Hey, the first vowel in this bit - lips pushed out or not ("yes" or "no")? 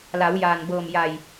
no